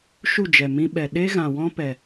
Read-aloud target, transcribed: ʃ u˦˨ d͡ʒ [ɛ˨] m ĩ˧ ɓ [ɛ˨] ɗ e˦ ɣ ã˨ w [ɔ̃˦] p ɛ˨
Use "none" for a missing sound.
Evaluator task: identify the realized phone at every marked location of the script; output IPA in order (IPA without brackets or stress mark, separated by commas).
ɛ˨, ɛ˨, ɔ̃˦